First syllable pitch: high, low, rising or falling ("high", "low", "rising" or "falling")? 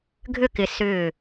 falling